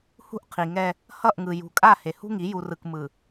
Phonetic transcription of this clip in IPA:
h ṳ˦ ʔ qʰ i˨ ŋ ɛ˦ | h ʌ˦˨ ʔ ŋ ɯ˨ j ṳ˨ kʼ a˦˨ h e˨ h ṳ˦ ŋ i˨˦ j u˨ r ɯ˨ k m ɯ˨

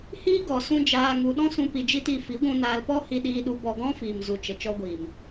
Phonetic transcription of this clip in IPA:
h iː˦ ɡ ɔ˨ s ũ˦ d͡ʒ aː˧ ŋ u˧ ɗ ɔ̃˦ s ũ˧ p i˧ d͡ʒ i˦ t i˧ f i˨˦ ɡʷ ũ˧ n aː˧ l p ɔ˦ h i˧ ɗ iː˧ ɗ u˧ b ɔ˧ ɡ ɔ̃˦ f iː˨ m z u˨ t͡ʃ ə˨ t͡ʃ ɔ˧ ɡʷ iː˨ m

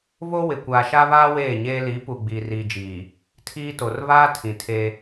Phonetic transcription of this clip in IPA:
β o˦ w ɪ˨ kʷ aː˨ ʃ a˦ β aː˦ w eː˦˨ ɲ eː˦ l i˨˦ p u˨ ɡ͡b iː˨ r iː˨ d͡ʒ iː˨ | tʰ iː˦ t o˨ r β aː˦ tʰ ĩ˨ tʰ e˦

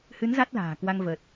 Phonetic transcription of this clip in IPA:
h ɨ˨˦ n z a˦˥ t̚ l a̤ː˨˩ k w a˧ ŋ v əː˨˩ t̚

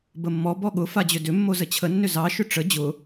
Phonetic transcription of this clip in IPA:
b ə mː ɔ b ɔ ɠ ʊ f a d͡ʑ ʏ d ʏ mː o z ə t͡ɕʰ ə nː ʏ z ɑ ʃ ʏ ʈ͡ʂ ə d͡ʑ ʊ

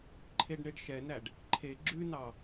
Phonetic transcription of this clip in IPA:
ǃʰ e ɖ ɳ e ɖ ʃ ɛ n æ ɖ | ǃʰ e ɡ͡ǁ ʉ n ɑ

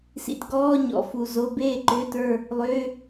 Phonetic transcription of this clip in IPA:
s ḭ˨ t ɡ ɔː˧˥˧ ɲ ɔ̰˨ f u˨ z o˧˥˧ b eː˥˨ ǃ ʏː˧˥˧ t ə˞˥˨ | lˠ ʏː˧˥˧

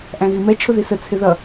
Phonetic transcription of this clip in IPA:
ʔ æ̃ ɣ i m ɛ t͡ʃʰ ʊ ð i s ə t͡sʰ ɪ ð ʌ

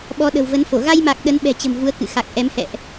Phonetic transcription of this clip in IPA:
ɓ ɔ˨˦ ɗ ə̤˨˩ w v ə˨˦ n f o˧˩ ɣ a˧ j m a˨˩ k̚ ɗ ə˨˦ n ɓ ɛ̤˨˩ t͡ɕ ə̤˨˩ m v u˨˦ ə̯ k ɨ̰˧˨ x a˨˩ k̚ ʔ ɛ˨˦ m h ɛ̰˧˨ ʔ

